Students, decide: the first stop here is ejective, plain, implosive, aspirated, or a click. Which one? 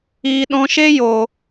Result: implosive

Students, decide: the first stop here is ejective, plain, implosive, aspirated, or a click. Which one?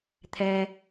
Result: aspirated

